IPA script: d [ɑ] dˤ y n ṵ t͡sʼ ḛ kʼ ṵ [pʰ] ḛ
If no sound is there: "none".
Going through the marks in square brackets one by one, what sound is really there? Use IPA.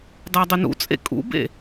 ɑ, b

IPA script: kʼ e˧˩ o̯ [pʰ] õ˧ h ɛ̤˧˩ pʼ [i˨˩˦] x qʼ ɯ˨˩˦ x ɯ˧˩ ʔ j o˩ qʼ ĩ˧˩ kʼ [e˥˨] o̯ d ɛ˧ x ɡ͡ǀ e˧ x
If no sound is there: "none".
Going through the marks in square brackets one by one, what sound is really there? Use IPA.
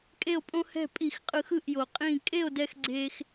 pʼ, i˨˩˦, e˥˨

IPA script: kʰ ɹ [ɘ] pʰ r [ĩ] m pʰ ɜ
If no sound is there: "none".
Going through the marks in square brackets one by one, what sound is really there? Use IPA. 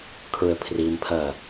ɘ, i

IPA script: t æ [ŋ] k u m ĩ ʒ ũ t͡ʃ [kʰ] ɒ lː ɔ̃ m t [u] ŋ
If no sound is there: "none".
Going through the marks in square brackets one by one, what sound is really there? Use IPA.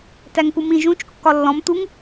ŋ, kː, u

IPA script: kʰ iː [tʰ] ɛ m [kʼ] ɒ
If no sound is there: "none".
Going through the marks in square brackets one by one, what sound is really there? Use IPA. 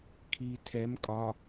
tʰ, kʼ

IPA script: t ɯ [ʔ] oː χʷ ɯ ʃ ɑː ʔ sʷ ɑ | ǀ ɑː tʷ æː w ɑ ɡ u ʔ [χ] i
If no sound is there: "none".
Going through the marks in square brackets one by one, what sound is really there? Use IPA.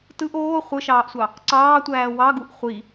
ʔ, χʷ

